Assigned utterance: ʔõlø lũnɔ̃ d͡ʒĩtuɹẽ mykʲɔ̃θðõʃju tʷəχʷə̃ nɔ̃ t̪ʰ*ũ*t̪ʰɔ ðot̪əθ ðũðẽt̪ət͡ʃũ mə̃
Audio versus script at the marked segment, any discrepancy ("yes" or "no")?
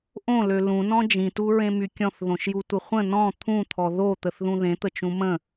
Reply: no